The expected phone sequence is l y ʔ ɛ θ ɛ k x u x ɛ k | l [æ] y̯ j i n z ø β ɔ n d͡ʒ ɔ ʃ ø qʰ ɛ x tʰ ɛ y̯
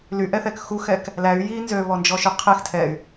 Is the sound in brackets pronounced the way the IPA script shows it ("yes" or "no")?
yes